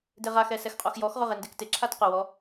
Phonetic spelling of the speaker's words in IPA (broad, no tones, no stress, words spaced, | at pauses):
deʁaxɛ sɛxqʼoxjɔxʁʊ ʁendektɪǁʰat qʊwɔ